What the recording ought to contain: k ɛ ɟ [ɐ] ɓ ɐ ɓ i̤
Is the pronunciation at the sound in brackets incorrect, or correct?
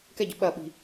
correct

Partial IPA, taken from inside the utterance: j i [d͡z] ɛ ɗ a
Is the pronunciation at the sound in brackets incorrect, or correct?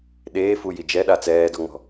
incorrect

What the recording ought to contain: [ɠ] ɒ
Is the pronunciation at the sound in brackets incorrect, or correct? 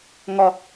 incorrect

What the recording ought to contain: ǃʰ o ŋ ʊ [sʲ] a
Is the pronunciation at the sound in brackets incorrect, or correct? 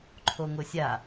correct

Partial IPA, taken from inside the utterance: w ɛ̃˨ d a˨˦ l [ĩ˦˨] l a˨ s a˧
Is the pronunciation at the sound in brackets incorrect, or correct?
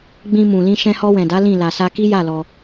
correct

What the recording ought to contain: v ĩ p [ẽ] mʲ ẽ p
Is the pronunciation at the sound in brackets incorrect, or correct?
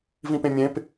correct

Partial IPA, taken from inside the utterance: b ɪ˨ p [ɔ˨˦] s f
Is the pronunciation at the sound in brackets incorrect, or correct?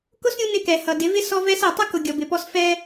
incorrect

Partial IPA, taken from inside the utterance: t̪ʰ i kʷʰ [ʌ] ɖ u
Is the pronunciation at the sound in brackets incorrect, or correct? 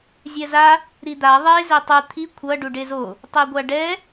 correct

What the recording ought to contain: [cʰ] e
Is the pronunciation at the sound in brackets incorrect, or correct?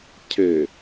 correct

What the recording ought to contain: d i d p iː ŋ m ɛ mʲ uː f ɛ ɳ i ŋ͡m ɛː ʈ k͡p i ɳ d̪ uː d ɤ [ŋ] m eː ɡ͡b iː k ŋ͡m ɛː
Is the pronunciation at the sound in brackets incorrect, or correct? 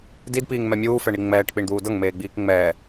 correct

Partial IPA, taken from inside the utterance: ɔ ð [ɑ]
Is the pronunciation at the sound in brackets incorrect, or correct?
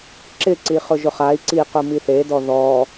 incorrect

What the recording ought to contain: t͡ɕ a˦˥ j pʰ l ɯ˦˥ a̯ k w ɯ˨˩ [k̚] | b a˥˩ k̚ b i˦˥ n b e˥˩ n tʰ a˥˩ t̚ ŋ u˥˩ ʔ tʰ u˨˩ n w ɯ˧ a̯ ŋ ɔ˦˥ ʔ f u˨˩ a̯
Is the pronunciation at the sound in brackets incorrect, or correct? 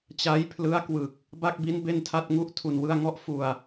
correct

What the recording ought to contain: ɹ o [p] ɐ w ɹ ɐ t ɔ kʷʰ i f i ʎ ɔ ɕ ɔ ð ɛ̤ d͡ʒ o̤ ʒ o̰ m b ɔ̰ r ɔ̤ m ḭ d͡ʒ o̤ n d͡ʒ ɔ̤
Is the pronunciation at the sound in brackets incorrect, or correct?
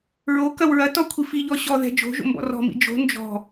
incorrect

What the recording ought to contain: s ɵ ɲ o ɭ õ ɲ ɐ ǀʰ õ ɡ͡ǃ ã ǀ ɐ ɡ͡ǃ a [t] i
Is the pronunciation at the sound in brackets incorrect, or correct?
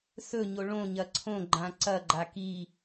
incorrect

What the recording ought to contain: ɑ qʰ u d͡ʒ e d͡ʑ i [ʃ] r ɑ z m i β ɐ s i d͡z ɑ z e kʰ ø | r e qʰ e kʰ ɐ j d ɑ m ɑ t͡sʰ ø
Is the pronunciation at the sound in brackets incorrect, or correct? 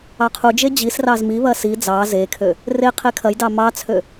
incorrect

